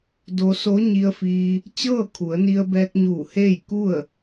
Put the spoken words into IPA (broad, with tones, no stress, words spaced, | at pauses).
do˧so˧˥ ɲi˧ə̯fiː˧ | t͡ɕɤː˥˨kʰu˩˧ə̯ni˧ə̯ bɛː˧k̚ɲuː˧˩ heː˥˨jku˥˨ə̯